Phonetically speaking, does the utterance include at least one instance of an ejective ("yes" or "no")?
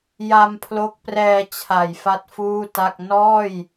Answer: no